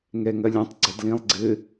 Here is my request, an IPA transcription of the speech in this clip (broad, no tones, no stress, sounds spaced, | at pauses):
ŋ ɛ ŋ ɐ lʲ ɐ̃ tˤ ɡ͡ǀ ʌ d l ĩ lˠ ɡ͡ǀ ɘ